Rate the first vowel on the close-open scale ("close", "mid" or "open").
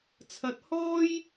open